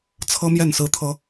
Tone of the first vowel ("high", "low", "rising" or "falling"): high